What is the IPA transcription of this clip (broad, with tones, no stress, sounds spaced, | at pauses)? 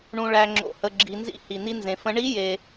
ɳ ũ˧ ɭ æ˧ ŋ͡ǁ o̰˧ h ə˧ ɡ͡ǁ i˧ n z ḭ˦˥ h i˧ n̪ i˦˥ n z ẽ˧ f ə̃˦˥ ɳ i˦˥ j e˧